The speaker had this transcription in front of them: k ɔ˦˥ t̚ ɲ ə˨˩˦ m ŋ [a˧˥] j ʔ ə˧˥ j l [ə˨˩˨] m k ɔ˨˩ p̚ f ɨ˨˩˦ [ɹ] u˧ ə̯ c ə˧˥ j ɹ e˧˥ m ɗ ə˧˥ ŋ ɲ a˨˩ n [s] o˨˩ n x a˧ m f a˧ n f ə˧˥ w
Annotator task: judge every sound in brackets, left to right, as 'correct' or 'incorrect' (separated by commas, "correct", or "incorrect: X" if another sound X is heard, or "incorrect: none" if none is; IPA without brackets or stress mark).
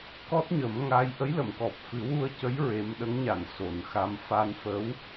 correct, correct, incorrect: w, correct